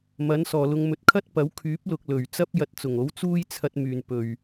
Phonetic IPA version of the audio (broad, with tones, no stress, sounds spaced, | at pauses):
m ɐ˨˥ n s ɔː˨ l ʊ˧ ŋ m ɵ˨ t̚ kʰ ɐ˥ t̚ p ɐ˨˥ w kʰ yː˨˥ p̚ l ʊ˨ k̚ l ɵ˨˩ ɥ t͡s ɐ˥ p̚ j ɐ˨˥ t̚ t͡s ʊ˨˩ ŋ o˨˥ w t͡s uː˥ j t͡sʰ ɐ˧ t̚ m yː˨˩ n p ɵ˨˩ ɥ